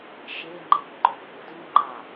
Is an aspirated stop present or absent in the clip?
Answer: absent